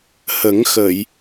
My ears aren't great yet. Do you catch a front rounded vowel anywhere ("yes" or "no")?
no